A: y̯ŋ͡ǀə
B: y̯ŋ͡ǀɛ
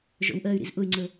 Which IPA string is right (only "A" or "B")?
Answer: A